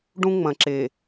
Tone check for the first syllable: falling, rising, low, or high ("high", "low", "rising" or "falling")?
high